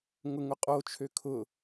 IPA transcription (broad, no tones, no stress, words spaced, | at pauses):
ŋʊŋʊqʼo t͡ʃʰøkʰʊ